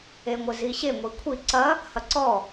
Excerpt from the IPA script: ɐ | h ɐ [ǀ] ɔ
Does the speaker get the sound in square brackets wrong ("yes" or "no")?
no